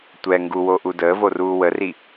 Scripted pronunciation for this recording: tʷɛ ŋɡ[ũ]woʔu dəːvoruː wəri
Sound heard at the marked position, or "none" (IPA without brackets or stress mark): u